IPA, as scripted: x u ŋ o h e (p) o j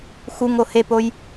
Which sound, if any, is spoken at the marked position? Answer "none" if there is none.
p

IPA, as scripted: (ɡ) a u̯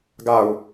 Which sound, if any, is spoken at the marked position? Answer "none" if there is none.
ɡ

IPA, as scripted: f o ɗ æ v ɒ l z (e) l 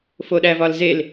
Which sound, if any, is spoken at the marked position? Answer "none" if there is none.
e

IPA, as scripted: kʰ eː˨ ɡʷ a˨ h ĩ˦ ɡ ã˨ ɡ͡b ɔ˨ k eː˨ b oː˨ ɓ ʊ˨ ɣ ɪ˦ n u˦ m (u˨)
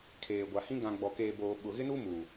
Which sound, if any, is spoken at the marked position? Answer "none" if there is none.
u˨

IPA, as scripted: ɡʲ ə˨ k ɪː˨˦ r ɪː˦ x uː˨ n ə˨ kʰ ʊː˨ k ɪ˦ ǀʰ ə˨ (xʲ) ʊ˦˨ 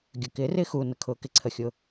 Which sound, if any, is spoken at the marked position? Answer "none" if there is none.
xʲ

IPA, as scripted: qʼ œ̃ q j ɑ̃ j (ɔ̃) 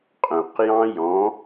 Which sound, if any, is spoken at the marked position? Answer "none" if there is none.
ɔ̃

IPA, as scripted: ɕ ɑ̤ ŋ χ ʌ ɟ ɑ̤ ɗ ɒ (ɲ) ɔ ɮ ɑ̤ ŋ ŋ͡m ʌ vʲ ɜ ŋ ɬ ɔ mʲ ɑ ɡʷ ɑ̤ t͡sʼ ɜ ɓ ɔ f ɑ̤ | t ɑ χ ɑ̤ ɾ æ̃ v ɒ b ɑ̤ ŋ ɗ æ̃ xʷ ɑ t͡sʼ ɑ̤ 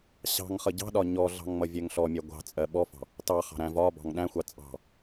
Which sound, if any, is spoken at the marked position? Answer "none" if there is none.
ɲ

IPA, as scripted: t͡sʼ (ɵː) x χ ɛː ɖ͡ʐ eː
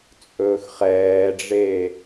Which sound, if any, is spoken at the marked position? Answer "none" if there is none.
ɵː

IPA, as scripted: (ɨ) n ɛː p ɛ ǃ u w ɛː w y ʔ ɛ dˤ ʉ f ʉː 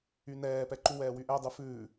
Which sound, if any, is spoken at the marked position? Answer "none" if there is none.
y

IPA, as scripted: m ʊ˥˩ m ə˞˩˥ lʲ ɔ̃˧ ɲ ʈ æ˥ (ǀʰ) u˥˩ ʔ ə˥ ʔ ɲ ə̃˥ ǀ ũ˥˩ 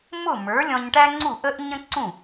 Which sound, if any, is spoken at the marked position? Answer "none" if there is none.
ŋ͡ǀ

